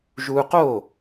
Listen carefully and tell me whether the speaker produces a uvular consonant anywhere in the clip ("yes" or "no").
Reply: yes